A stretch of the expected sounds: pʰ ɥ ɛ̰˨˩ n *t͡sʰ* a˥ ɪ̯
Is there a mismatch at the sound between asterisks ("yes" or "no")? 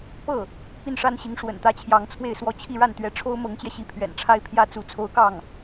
yes